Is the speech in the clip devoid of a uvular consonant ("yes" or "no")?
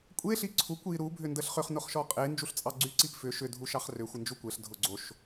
no